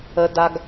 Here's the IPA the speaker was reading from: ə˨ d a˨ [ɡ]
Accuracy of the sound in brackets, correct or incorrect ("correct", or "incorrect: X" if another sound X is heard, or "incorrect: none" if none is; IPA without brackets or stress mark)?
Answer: correct